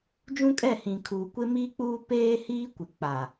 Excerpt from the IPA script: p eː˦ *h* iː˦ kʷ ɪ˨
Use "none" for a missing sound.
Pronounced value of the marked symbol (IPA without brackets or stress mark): h